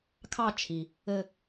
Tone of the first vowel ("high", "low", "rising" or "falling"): falling